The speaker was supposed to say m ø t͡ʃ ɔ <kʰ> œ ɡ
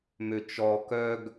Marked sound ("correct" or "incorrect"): incorrect